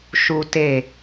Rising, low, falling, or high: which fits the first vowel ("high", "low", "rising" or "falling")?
high